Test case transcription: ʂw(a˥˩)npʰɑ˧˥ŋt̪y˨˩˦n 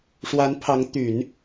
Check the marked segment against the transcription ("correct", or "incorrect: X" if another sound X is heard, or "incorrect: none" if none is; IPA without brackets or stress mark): incorrect: a˧˥